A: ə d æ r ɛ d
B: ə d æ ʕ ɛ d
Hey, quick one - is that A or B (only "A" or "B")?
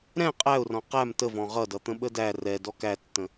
A